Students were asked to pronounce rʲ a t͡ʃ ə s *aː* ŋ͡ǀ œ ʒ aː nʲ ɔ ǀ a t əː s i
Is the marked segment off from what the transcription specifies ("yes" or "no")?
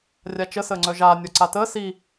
yes